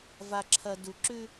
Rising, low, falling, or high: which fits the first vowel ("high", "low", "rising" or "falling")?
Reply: high